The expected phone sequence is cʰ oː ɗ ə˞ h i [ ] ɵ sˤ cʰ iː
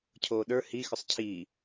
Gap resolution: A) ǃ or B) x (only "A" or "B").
B